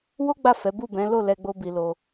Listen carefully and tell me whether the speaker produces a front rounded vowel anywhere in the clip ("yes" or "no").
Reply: no